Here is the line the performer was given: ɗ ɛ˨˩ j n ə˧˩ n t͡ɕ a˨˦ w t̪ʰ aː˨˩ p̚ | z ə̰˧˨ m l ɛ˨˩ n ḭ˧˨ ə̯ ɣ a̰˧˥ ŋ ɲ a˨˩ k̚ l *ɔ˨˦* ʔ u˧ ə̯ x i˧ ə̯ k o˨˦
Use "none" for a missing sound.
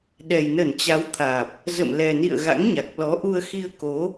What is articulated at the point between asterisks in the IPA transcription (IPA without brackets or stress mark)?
ɔ˨˦